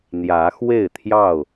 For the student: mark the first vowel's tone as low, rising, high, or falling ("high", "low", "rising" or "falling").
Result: rising